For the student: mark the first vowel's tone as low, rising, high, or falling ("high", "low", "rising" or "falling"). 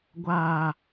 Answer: high